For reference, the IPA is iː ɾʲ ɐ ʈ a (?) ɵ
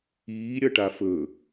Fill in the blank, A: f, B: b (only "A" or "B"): A